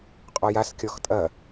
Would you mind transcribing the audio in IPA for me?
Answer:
qʼ ɔ j a s kʲ ɔ x tʼ ɐ

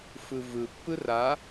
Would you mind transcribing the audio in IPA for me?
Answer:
f ɯ v ɯ pː ɯ r a

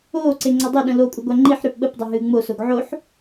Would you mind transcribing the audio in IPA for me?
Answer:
oː ǀ e ŋ͡ǀ a dˤ e ɗ ə̃ l o kʷʼ ə ɡʷ a ŋ͡ǃ i ħ ɾ ʏː p ɓ ə p dˤ a ɦ ɨː ŋ͡m o s o ɡ ʕ o ħ

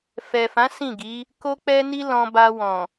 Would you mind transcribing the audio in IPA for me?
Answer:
f ɛ˨ f ã˨˦ s ĩ˦˨ ɡ i˨˦ | k o˦ k͡p ɛ˦ n i˦ l ɔ̃˧ b a˧ w ɔ̃˨

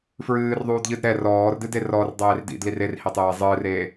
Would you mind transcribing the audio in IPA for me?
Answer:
f ɹ ɨː r ðˤ uː d ʎ ɨ d ɾ ɛ r ɔː r d ɨ d e r ɔ r dˤ eː r d ḭ d l i r e r h i tˤ eː zˤ ɨː r eː

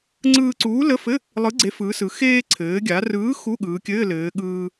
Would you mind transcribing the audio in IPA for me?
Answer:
ŋ͡ǀ ɯː˧ ǀ uː˨˥ l ə˧˥˧ f ɘ˧˥˧ | lˠ ɯ˨˥ ɡ͡ǀ e˨˥ f ɯː˩˧ s ɯ˩˧ x eː˧ ǀʰ ɘː˩˧ ɡʲ a˩˧ r ɯː˨˥ x u˧˥˧ ɠ ɯː˩˧ kʲ ɘː˧˥˧ l ɘː˩˧ ɠ ɯː˧

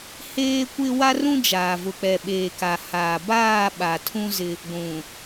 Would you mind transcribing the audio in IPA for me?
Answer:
h eː˦ kʷ ɪ˦ w a˦ r ũ˦ d͡ʒ aː˨ v ʊ˨ k͡p ɛ˨ ɓ eː˨ k a˨ h aː˨ b aː˦˨ ɓ a˨ tʰ ũ˦ z ɪ˦ | ɡʷ ũ˨

